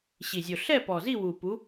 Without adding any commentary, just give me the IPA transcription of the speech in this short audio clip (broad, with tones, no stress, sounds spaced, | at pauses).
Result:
ɕ i˨˩ zʲ o˨˩ ɬ ɛ˥˨ p ɔ˨˩ z i˥˨ w u˨˩ p u˨˥